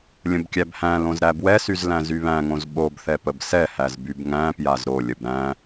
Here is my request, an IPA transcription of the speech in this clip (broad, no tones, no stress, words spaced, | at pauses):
lʲə̃bkʲæbhæ̃lõz ɾæbwɛsyz læ̃zyβæ̃ŋõz ɓobθɛ pəbsɛhæz bybŋæ̃pjaz ɾolʲəb ɾæ̃